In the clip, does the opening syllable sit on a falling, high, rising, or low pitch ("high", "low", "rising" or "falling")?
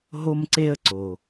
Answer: high